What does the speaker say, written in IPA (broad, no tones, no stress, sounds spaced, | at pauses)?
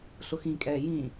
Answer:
ɬ ʊ x ĩ kʼ ɛː j ĩː